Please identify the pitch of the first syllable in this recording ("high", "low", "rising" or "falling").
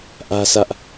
high